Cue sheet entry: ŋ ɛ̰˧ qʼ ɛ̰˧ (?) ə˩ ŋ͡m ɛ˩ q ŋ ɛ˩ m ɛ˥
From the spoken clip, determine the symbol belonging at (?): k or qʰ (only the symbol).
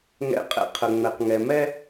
qʰ